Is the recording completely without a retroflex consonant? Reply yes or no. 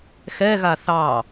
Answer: yes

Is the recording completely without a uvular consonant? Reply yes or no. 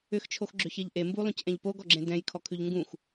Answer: yes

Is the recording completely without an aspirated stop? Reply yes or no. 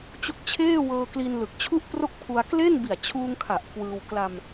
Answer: no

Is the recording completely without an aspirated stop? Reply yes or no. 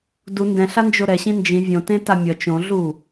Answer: yes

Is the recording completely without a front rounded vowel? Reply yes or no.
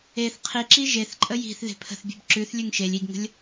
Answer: yes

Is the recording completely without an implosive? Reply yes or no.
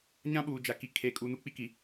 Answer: no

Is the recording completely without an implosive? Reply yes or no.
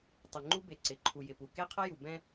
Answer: yes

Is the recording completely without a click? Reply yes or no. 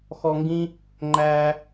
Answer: no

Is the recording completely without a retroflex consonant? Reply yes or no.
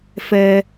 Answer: yes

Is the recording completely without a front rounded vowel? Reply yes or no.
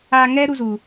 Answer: yes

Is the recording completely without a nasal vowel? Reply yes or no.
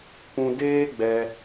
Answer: no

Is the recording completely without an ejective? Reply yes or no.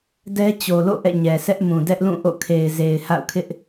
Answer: yes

